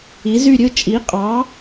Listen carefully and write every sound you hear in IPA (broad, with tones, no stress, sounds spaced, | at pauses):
i˩˥ z y˥˨ ɾʲ ɯ˥˨ t͡ʃʼ i˩˥ qʼ ɑ˩˥